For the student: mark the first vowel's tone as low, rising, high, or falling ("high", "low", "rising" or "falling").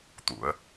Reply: rising